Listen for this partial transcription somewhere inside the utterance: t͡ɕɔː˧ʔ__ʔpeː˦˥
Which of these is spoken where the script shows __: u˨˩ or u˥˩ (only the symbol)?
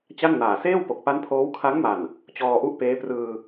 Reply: u˥˩